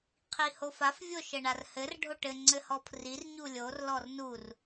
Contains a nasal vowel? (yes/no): no